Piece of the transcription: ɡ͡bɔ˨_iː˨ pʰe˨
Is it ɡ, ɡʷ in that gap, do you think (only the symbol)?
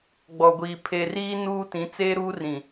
ɡʷ